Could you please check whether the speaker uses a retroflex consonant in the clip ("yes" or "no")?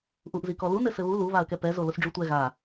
yes